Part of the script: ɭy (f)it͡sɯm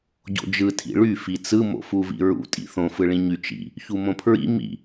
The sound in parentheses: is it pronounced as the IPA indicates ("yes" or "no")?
yes